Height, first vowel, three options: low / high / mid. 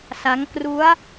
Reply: low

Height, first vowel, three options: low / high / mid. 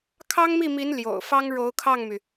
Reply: low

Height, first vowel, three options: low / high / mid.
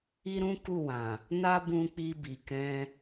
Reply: high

